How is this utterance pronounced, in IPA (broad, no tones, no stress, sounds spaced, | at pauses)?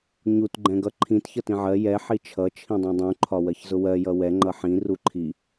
ɲ u t ɡ͡ǃ ɛ̃ ɡ ʌ ǃʰ ĩ t ç ʌ t ĩ ʕ ɜ j ɛ ħ i t͡ʃʰ ʌ t͡ʃʰ ĩ dˤ ɛ̃ dˤ ũ ǃʰ ɒ w ɜ ç z ʊ w ɜ j ʌ w ɛ ŋ͡ǃ ʌ ħ ĩ r u ǃʰ i